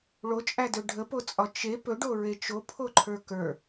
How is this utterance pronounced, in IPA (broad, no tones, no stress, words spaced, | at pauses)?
ɭot͡ʃʼædɵ ɖʱəpot͡sʼɒ t͡ʃe pɵɖoɹe t͡ʃopʰoǃʰə˞ kə˞